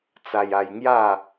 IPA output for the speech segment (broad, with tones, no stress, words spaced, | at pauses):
t͡sa˧ja˧j ŋja˥˧